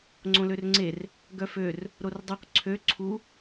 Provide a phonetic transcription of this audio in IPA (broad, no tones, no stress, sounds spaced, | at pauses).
ŋ͡ǀ õ l ø r ŋ͡ǀ e r | ɡ œ f ø r | ɾ o r dˤ y q ǀʰ ø ǀʰ u